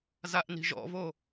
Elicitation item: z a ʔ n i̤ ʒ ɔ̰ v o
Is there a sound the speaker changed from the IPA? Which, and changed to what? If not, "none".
none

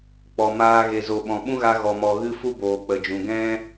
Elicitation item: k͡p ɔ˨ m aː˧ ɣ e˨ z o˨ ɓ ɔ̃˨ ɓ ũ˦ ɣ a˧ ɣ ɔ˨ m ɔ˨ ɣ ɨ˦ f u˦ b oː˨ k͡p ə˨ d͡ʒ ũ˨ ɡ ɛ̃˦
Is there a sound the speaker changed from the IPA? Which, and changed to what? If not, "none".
none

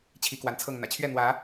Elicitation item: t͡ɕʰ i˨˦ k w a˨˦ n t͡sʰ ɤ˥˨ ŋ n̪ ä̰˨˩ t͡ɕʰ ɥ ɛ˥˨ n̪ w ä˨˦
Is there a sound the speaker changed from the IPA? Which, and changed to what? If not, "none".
none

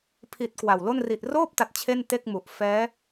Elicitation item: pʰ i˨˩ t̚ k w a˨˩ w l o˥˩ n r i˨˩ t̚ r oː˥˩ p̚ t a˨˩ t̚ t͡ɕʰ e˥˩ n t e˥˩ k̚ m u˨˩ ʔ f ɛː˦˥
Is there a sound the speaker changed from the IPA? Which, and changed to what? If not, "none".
none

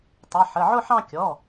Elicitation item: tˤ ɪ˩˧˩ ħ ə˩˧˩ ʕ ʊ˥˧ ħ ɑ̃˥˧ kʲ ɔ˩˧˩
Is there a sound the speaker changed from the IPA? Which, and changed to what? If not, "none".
none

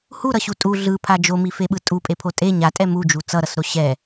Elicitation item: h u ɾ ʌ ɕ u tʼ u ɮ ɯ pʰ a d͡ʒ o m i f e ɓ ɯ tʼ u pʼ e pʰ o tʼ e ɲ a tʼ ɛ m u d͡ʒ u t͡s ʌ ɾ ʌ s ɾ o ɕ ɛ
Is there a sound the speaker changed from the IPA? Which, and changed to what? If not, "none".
none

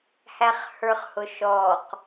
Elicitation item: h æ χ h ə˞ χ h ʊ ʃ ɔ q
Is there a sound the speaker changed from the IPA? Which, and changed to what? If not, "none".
none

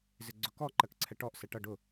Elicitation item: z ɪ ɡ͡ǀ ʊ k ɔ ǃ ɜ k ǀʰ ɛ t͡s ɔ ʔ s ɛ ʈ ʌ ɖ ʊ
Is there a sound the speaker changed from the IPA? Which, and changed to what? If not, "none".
t͡s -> ʈ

